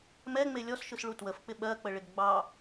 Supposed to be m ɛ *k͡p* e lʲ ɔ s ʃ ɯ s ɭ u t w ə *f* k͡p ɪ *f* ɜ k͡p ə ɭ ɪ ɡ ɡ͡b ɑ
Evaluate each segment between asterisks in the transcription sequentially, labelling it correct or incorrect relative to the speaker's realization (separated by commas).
incorrect, correct, incorrect